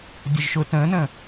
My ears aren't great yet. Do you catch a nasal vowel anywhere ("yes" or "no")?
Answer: yes